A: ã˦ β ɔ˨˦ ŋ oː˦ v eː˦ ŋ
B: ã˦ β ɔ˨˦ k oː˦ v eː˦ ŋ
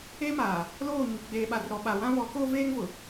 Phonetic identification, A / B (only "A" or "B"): B